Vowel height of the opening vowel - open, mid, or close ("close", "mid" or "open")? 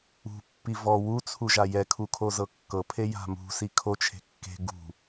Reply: close